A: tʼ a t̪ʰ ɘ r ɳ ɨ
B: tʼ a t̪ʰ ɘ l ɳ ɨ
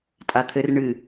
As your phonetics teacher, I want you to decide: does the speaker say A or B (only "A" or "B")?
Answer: A